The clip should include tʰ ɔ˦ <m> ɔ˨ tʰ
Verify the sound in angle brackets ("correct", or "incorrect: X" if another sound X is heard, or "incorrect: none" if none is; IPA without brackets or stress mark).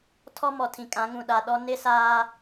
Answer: correct